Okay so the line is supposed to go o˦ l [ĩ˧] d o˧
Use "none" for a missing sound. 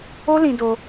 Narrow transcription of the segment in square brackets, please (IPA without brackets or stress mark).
ĩ˧